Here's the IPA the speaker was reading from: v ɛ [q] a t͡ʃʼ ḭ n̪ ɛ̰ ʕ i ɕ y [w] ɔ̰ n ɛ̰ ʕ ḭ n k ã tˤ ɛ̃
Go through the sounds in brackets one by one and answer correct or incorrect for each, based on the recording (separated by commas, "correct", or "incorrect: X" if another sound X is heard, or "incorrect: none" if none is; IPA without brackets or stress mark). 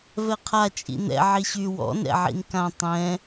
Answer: incorrect: qʰ, correct